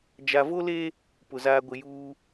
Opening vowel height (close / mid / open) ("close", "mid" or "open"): open